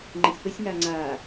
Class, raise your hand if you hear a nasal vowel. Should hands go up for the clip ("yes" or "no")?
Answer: yes